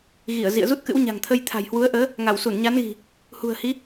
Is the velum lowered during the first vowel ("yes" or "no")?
no